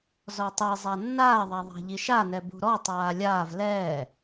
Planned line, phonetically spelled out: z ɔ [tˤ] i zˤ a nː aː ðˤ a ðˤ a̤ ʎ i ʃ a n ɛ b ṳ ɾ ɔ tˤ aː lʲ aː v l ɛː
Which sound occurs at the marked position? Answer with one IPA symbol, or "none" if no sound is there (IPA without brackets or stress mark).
tˤ